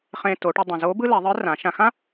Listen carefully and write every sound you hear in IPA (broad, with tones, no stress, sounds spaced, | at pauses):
χ ẽ˧ t o˩˧ ʈ ɪ˧ dˤ ə̃˩ z o˧˥ b ɯ˥ l ɛ˩˧ ðˤ ɯ˧˥ r ã˩˧ ʃ ã˧ x ã˥